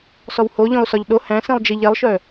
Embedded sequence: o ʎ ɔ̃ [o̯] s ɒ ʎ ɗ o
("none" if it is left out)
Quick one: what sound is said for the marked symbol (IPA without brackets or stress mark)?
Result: o̯